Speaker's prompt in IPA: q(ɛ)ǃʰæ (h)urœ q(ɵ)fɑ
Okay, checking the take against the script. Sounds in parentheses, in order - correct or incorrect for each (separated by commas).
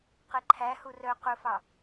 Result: correct, correct, correct